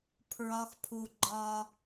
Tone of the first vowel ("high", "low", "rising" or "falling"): high